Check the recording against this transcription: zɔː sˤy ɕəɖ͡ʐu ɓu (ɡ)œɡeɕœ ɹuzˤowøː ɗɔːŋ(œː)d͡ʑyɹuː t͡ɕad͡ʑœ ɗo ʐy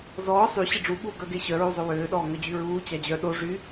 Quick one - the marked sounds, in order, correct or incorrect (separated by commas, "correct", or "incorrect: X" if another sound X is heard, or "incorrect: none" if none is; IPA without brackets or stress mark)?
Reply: correct, incorrect: œ